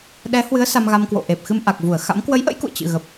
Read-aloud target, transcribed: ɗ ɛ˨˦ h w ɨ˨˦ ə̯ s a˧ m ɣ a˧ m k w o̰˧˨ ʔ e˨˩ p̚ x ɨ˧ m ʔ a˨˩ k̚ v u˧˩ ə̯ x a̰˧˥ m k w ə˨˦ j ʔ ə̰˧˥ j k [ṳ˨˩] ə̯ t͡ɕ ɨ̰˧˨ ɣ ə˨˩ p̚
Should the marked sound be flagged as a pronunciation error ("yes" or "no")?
yes